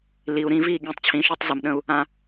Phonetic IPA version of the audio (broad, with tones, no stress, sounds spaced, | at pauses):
l i˨ u̯ ɾ ĩ˧ v i˦˨ ɠ ĩ˨ tˤ t͡ɕʰ ĩ˨˦ ʃ y˧ tˤ z ə˨ m ɗ ə̃˧ u̯ | ã˧